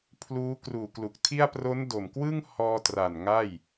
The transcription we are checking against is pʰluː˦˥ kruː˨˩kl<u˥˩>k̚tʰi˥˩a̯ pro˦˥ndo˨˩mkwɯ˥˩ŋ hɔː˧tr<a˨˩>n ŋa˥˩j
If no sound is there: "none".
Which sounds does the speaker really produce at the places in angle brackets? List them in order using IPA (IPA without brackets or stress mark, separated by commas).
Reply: u˨˩, a˨˩